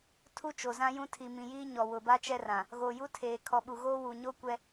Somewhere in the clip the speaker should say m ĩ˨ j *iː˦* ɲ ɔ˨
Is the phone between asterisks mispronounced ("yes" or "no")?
no